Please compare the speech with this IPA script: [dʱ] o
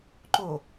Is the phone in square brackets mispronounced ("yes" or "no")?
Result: yes